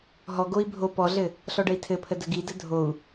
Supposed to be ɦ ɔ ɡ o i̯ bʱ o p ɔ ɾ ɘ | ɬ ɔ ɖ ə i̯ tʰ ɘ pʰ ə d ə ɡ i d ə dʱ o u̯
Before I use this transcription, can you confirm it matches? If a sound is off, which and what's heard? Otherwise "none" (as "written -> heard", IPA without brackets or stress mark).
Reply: ɾ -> ɮ